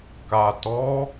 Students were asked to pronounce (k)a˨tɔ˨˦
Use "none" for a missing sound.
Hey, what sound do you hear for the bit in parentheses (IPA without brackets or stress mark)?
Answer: k